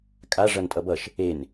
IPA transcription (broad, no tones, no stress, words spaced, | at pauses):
kʼa ʐʌntʼʌbʌʃ | en